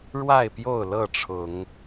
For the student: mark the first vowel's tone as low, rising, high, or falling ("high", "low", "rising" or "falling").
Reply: falling